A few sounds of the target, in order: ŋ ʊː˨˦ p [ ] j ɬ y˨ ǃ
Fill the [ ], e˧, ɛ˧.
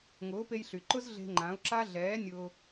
e˧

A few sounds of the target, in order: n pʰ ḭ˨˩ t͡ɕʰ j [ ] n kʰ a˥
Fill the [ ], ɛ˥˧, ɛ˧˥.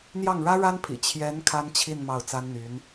ɛ˧˥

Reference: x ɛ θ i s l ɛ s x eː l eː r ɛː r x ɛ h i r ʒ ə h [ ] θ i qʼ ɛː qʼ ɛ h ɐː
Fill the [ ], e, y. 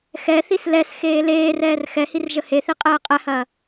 e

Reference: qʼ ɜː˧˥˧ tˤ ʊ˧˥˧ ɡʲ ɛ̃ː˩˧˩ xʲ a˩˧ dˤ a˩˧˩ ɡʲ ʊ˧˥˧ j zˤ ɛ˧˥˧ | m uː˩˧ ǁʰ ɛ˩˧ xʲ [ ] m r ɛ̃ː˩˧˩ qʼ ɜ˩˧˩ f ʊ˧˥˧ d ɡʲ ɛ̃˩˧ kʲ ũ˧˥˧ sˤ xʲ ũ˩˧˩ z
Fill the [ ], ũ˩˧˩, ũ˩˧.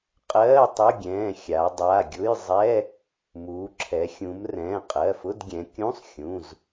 ũ˩˧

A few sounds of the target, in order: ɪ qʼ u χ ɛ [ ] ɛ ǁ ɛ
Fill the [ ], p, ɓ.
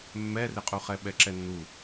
ɓ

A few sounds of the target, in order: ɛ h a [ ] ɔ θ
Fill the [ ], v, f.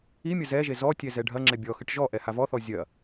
v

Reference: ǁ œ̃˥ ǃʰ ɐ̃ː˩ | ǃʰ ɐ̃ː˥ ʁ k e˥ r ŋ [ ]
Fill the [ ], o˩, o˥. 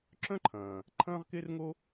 o˥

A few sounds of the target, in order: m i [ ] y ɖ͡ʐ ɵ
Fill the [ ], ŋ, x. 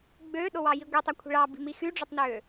x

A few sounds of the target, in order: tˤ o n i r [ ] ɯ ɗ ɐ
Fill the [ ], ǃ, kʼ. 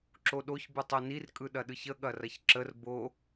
kʼ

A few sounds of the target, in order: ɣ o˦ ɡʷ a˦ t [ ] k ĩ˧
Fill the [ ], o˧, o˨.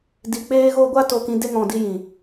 o˧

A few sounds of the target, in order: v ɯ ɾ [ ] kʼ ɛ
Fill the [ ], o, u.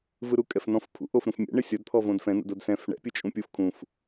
u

